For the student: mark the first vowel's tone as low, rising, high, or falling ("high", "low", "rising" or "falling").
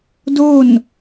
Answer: falling